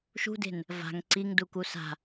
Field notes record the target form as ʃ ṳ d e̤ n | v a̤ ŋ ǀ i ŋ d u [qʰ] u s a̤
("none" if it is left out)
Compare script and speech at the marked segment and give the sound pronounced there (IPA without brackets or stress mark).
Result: k